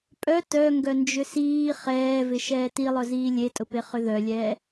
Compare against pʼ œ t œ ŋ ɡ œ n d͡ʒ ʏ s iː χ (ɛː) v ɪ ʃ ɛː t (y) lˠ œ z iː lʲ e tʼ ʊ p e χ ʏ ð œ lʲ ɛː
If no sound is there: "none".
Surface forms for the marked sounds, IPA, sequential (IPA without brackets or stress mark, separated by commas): ɛː, i